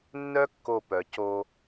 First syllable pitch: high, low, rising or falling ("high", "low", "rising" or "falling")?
high